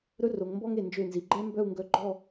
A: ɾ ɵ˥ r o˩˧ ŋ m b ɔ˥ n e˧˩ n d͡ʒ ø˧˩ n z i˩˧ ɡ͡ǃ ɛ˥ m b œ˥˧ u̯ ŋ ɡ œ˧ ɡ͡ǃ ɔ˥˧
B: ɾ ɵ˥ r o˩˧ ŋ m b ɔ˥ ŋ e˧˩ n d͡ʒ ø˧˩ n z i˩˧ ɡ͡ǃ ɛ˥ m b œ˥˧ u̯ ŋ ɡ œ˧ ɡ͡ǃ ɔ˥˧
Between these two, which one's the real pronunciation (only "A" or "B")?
B